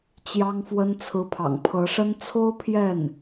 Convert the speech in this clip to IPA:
t͡ɕ j ɑ˥ ŋ f w ə˥ n t͡sʰ ɹ̩˧˥ pʰ ɑ̰˨˩ ŋ pʰ ɤ˧˥ ʂ ə˥ n t͡sʰ o˥ ʊ̯ pʰ j ɛ˥˩ n

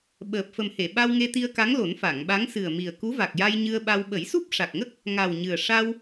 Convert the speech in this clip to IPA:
ɓ əː˨˩ p̚ f ə˨˩ m h e˨˩˨ ɓ a˧ w ŋ e˧ t̪ i˧ ə̯ k a˧˥ ŋ l o˨˩˦ n f a˨˩˨ ŋ ɓ a˧˥ ŋ s ɨ˨˩ ə̯ m i˨˩ ə̯ k u˧˥ v a˨˩ k̚ j a˧ j ɲ ɨ˧ ə̯ ɓ a˧ w ɓ ə˨˩˦ j s u˦˥ p̚ ʂ a˨˩ k̚ ŋ ə˦˥ k̚ | ŋ a˨˩ w ɲ ɨ˨˩ ə̯ ʂ a˧ w

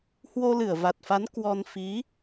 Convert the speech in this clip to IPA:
h w o˧ l ɨ˧˩ ə̯ v a˨˩ t̚ f a˨˦ n k w ɔ˧ n f i˨˦

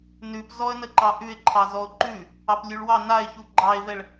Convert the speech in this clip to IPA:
n ʉ p z ɔ ə̯ n ə ǃ ɑ ʔ ʉ ɪ̯ ǃʰ ɑ z ɔ ʊ̯ ǃ ʉ | ɑ p lʲ ʉ ɭ w ɑ n a ɪ̯ ç u ɡ͡ǃ ɑ ɪ̯ v ɛ ɭ

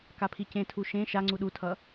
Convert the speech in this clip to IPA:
k a pʰ i c ẽ tʰ u ʃ ẽ ʃ a ŋ͡ǀ u ɗ u tʰ ʌ

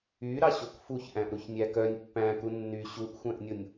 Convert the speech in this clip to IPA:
y ɾ ɑ ɕ o k f u ç ʔ æ̃ ʔ ɾ u ç nʲ æ k œ nʲ pː æ̃ k u nː y ɕ u ʔ xʷ æ̃ ʔ nʲ o nʲ

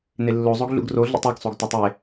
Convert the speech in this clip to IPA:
n e lː o zˤ o ɡ ɮ ṵ ɡ r o ɮ ṵ tˤ e ɡ sˤ o ɡ t ɒ tˤ e

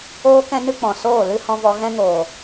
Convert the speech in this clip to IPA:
oː˦ k ɛ̃˦ n ɨ˦ k͡p ɔ̃˨ s oː˦˨ l ɨ˦ h ɔ̃˧ v ɔ˧ ɣ ɛ̃˦ ŋ oː˨

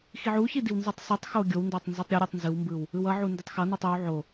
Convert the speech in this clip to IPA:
x i ʕ u ç i d i w n z u tˤ s ɯ tˤ x o ɡʲ o w n d o tˤ n z i tˤ ɾʲ ʌ ɾʲ ɯ tˤ n z ɯ w m b ɯ w | ɯ w ʌ ʕ u n d i tˤ x ʌ n u tˤ ɯ w ʕ o

